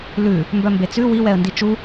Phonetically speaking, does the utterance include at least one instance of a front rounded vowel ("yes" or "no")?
yes